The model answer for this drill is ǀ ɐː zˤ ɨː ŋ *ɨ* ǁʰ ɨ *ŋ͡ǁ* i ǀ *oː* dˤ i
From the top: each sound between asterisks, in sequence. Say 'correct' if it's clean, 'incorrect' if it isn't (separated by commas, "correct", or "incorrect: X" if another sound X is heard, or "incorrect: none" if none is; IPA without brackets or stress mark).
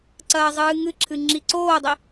correct, correct, correct